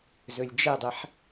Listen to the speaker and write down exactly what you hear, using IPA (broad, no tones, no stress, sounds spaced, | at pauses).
z ɵ lʲ d͡ʒ ɛ dˤ ɛ ħ